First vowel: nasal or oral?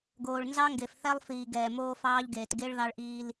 oral